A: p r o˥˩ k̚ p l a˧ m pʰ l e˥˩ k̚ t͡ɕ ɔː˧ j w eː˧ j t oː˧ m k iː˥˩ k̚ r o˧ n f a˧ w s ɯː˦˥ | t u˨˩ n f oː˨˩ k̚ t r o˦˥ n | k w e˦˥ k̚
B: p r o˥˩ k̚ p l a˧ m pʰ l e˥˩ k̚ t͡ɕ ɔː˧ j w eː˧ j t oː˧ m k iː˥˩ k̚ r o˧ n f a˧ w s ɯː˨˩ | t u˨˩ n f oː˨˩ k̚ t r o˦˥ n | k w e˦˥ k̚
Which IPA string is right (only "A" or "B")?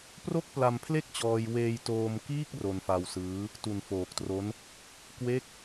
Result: A